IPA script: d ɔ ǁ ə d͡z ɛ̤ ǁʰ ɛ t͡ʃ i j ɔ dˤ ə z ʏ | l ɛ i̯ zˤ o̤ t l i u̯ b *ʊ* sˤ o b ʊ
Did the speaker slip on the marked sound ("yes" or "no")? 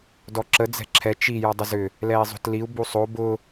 yes